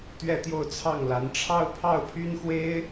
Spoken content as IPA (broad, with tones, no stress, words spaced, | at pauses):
t̪ɥɛ˥˧t̪jo˥˧ʊ̯t͡sʰɑ˥˩ŋla˧˥n ʈ͡ʂʰɑ˥˧ʊ̯pʰɑ˥˩ʊ̯pʰy˥nxwe˥ɪ̯